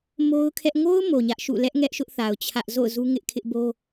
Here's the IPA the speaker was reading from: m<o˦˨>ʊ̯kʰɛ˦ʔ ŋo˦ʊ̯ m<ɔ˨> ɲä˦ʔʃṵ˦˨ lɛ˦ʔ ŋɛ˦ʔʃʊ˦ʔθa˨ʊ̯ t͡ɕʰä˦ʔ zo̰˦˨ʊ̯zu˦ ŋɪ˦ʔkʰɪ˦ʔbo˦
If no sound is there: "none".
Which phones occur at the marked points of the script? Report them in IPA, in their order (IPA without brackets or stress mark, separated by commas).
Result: o˦, o˨